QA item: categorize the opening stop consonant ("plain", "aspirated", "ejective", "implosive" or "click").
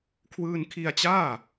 aspirated